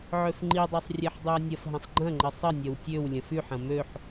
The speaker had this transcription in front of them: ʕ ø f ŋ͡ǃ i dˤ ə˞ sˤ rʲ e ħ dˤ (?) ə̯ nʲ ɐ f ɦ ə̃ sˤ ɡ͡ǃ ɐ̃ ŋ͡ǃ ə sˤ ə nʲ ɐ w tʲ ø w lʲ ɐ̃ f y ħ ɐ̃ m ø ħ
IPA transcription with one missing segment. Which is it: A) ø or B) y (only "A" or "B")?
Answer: B